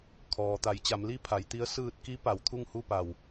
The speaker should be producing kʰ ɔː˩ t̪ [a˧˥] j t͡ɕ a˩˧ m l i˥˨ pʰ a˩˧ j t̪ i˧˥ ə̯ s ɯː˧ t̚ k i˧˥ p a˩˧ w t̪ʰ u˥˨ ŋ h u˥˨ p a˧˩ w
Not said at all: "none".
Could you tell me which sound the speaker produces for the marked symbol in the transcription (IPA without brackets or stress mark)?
a˩˧